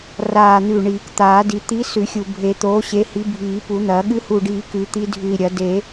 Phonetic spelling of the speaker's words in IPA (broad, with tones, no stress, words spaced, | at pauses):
raː˨˩n̪ʉ˨˩ ɳiː˨˩˦kt̪aː˨˩˦di˨˩˦ t̪i˨˥ sʉ˨˩˦xʲu˨˩bʱe˨˩˦ t̪oː˨˥ɕe˨˥ hi˨˥bʱiː˨˩˦pu˨˩˦n̪ɐː˨˩˦ ɠɨ˨˥hu˨˩ɖiː˨˩˦ kʉ˨˩˦t̪i˨˥dʱʉ˨˩i̯ɾʲɐ˨˩˦ de˨˩˦